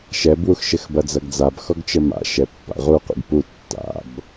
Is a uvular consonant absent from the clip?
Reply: no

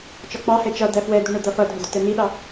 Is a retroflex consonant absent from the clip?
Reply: no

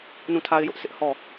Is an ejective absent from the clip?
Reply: yes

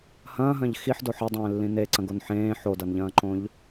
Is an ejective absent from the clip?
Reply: yes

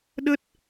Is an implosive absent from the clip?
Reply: no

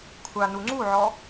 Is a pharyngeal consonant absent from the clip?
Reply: no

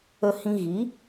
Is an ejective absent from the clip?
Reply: yes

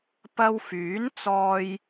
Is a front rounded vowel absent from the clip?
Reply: no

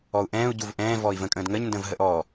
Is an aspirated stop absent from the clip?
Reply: yes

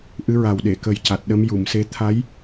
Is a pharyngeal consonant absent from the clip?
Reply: yes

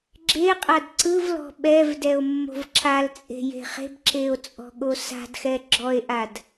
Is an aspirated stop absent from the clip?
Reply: yes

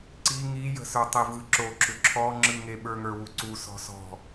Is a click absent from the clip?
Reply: no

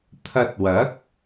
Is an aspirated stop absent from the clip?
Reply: no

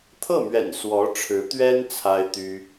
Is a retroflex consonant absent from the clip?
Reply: no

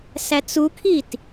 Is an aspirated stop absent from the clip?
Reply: no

